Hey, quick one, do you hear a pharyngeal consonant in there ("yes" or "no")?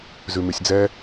no